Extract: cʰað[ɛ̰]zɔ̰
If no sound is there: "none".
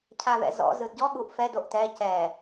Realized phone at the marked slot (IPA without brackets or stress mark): ɛ̰